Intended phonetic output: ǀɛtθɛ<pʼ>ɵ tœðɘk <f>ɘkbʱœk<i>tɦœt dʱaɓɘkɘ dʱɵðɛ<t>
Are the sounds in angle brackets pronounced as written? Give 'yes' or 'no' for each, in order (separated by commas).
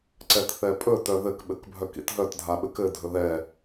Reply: yes, no, no, no